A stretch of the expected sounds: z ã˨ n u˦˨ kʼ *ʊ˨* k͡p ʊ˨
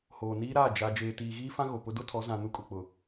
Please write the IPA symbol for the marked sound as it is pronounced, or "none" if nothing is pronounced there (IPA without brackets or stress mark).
ʊ˨